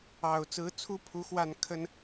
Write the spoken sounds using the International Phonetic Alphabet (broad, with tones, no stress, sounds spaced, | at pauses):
ɑ˨˩ ʊ̯ t͡s ɹ̩˧˥ t͡sʰ u˥ pʰ u˧˥ x w a˥˩ n kʰ ə˥ n